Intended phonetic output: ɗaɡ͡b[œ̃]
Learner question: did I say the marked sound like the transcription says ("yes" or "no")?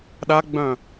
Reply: yes